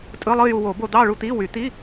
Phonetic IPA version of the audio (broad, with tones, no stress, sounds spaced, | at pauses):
tʼ ɯ˧˥˧ lˠ ɯ˥˧ j u˧ w o˨˩˦ b o˧ d̪ ɑ˥˧ ɭ u˥˧ t̪ i˧˥˧ w y˨˩˦ t̪ i˧˥˧